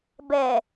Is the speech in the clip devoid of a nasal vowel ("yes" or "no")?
yes